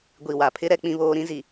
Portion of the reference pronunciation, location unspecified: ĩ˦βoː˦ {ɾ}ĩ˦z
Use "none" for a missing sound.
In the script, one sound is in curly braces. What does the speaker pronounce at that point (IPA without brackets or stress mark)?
ɾ